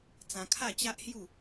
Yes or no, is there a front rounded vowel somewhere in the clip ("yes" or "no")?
no